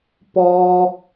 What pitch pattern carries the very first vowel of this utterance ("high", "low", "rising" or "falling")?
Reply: high